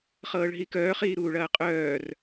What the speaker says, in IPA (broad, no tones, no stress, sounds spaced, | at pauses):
χ ɤː ɭ ɦ i k œː χ iː ɾ uː ɭ ɐː qʼ œː r